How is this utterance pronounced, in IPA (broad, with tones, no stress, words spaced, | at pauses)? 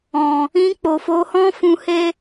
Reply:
ɔ̃˨ | ĩ˧k͡po˨fo˨˦ hɔ̃˦fũ˧he˦